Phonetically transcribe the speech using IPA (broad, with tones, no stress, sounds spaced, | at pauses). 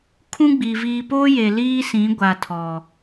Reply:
kʰ ũ˦ ɡ͡b iː˨ v iː˨ p oː˦ j e˨ l iː˦ s ĩ˨˦ ɡʷ a˨ tʰ ɔ˨